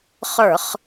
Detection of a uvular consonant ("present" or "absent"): present